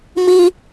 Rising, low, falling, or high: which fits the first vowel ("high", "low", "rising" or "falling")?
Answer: high